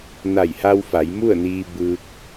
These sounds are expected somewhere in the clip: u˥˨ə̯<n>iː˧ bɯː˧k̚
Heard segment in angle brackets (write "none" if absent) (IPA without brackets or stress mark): n